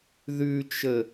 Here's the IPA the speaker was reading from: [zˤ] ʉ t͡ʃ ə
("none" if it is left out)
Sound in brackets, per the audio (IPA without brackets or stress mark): ð